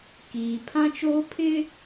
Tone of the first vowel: low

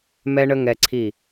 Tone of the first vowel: high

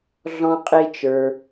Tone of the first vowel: high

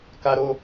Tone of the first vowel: high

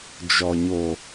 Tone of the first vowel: low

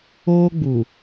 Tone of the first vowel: high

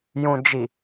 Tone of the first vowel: low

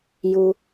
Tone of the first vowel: low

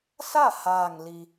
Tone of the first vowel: falling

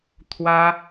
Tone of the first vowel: high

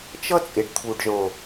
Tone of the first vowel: high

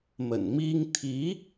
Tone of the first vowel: low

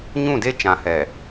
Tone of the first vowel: falling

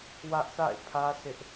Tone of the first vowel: high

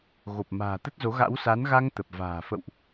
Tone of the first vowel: low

